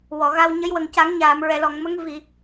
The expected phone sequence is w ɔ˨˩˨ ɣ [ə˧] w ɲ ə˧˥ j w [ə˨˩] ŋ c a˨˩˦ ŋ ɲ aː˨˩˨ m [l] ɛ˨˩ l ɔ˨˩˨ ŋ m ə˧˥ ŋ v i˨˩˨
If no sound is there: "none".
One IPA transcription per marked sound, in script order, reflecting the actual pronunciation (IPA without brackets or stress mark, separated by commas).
a˧, ə˨˩, ɹ